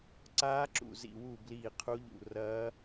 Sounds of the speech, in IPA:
ǀ aː˦˥ ǁ ṵ˦˨ z ḭ˦˨ w u˦˨ b l iː˦˨ qʰ u˦˥ ʎ ṵ˦˨ r ɐː˦˥

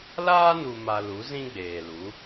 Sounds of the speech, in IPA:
l aː˦ n u˨ m a˨ l u˨˦ z ĩ˦ ɡ͡b eː˨ l u˨˦

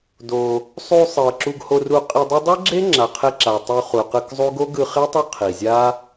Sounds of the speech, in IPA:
d o˧ | sˤ u˧ sˤ ɤ˨ ǁ u˧ ɡ h o˧ r u˧ qʼ i˧ dˤ i˦ dˤ ɯ˦ ɡ͡ǁ e˦ ŋ͡ǁ a˨ qʰ e˧ ǁ a˨ tˤ u˧ χ u˨ q ɯ˧ k zˤ u˦ ɡ o˦ ɡ ɯ˧ χ e˦ tˤ o˦ qʰ i˨ zʲ a˦

